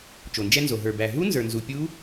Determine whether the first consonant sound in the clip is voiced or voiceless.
voiceless